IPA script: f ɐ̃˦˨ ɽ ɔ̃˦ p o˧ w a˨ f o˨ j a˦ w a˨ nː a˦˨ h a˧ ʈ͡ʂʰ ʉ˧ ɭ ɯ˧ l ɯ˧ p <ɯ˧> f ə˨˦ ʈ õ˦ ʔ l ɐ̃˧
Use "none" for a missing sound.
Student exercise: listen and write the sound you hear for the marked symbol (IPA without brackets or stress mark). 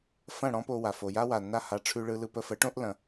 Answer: ə˧